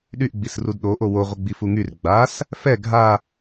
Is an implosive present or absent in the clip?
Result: present